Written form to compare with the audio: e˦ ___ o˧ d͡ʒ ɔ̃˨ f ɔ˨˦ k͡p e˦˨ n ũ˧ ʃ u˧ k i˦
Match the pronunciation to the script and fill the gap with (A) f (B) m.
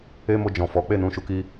B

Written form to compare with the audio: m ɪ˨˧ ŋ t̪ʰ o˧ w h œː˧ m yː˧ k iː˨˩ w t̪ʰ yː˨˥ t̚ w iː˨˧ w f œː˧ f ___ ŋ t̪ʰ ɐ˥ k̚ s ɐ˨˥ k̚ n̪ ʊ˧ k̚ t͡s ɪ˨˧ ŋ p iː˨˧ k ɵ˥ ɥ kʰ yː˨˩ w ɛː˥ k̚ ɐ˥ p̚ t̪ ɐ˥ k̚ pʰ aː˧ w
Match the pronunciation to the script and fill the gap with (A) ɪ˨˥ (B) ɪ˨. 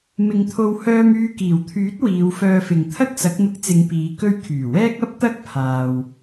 B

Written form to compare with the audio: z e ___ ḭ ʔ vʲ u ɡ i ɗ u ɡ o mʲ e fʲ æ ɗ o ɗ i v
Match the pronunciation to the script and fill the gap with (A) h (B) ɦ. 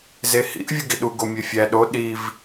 A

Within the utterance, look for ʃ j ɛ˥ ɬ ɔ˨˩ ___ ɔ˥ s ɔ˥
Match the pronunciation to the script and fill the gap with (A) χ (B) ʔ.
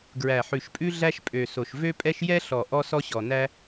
B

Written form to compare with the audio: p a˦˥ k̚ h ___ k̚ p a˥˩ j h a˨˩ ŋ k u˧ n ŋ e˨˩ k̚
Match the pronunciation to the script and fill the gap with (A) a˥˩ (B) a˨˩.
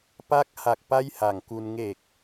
B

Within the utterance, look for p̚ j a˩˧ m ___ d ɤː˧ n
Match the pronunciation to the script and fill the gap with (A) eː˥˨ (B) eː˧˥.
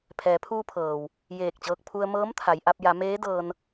B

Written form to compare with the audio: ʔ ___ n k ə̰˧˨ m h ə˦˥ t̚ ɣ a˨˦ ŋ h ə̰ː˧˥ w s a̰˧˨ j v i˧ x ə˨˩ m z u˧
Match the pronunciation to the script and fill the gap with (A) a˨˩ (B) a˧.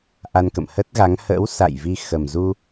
B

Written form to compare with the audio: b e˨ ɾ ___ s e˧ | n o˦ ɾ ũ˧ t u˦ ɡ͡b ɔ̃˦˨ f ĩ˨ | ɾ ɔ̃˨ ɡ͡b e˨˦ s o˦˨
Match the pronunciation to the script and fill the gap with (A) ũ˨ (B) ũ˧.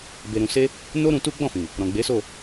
A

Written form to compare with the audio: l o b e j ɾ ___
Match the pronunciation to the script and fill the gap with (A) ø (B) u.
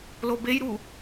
B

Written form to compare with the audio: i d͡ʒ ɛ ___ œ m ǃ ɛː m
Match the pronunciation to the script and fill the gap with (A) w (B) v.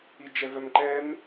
B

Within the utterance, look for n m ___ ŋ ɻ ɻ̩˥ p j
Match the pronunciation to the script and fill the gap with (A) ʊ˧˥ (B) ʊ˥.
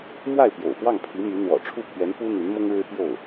B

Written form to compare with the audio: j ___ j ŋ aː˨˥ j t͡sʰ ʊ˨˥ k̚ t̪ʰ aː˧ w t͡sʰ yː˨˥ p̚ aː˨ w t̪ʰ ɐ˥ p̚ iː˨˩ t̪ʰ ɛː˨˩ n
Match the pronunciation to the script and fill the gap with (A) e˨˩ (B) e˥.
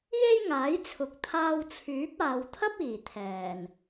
B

